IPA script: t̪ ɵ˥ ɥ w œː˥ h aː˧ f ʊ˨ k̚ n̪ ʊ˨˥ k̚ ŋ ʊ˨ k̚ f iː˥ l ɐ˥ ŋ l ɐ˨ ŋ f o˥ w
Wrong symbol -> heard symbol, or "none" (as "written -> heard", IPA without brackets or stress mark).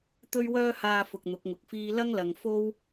none